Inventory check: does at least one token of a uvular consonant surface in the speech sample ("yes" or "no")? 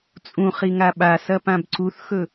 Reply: yes